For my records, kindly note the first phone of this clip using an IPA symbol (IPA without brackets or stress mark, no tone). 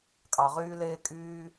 kʼ